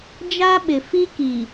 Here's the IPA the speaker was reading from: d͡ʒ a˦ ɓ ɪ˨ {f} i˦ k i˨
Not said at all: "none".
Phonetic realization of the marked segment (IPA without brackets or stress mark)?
f